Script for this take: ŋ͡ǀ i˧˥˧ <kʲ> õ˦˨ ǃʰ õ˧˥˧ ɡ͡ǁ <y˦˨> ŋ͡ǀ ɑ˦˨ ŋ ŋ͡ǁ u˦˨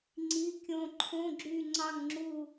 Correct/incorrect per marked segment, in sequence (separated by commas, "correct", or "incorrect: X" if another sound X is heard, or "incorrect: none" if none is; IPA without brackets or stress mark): correct, correct